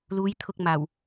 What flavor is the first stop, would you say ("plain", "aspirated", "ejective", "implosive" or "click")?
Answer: aspirated